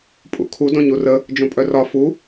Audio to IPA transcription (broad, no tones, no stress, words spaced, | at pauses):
pʼṵkʰu dõɲurə | d͡ʒõpʼœrɒ fu